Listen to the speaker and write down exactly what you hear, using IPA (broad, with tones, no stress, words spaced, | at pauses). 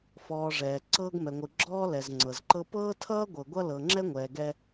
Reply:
fɔː˨ʐɛː˩ ǀɤː˦ɡmɛ˨ŋʷɯ˨ ɡ͡ǁɔː˦lɛ˩z ŋ͡ǀɤ˩zǃɤ˦ pɤː˥tʰʌː˥ ɡʷɤ˨ɡʷʌ˥ lɤ˨ŋ͡ǁɛ˥ŋʷɛː˨ɡɛ˦